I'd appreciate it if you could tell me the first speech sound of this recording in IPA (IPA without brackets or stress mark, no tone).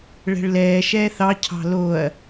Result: ɭ